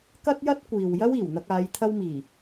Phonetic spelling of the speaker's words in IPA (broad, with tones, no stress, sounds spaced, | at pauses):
k ɐ˥ t̚ j ɐ˥ t̚ kʷ iː˨ w j ɐ˥ w iː˨˩ w n̪ ɐ˧ k̚ aː˨˧ j t̪ʰ ɐ˧ w m iː˨˩